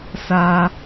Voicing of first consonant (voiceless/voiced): voiceless